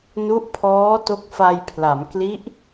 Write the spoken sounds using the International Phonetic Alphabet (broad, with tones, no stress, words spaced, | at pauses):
nu˦˥ʔpʰɔː˦˥ to˦˥k̚fa˧jpʰla˩˦m kli˦˥ʔ